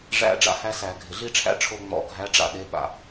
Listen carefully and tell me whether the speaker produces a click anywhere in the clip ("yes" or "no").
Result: no